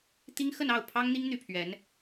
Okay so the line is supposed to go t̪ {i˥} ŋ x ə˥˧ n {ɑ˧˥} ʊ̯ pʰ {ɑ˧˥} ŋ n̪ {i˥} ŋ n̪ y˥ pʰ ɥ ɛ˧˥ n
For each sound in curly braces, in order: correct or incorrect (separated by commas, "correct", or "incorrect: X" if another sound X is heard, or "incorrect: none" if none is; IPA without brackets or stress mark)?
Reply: correct, incorrect: ɑ˥˩, incorrect: ɑ˥, correct